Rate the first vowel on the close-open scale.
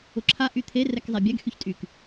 close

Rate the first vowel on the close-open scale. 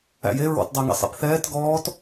open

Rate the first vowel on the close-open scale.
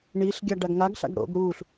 close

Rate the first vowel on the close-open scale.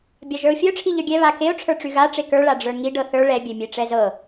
open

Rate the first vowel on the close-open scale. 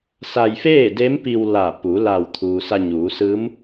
open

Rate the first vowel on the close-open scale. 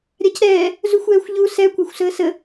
open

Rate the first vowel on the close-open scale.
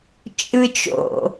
close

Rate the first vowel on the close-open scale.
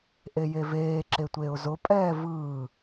mid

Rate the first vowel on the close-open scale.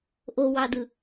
mid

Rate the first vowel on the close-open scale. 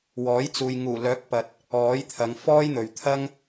mid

